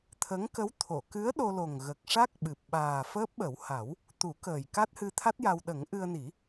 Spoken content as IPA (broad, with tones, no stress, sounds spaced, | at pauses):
t̪ʰ ə˧˥ ŋ k ə˧˥ w t̪ʰ o˨˩˨ k ɨ˧˥ ə̯ ɗ o˧ l o˨˩ ŋ ɣ ə˨˩ k̚ ʂ a˦˥ k̚ ɓ ɨ˨˩ p̚ ɓ aː˨˩ f əː˦˥ p̚ ɓ ə˨˩˦ w h a˨˩˦ w | t̪ u˨˩˦ k əː˨˩ j k a˦˥ t̚ h ɨ˧ t̪ʰ a˦˥ t̚ j a˧ w ɗ ə˨˩˦ ŋ ʔ ɨ˧ ə̯ n i˨˩˦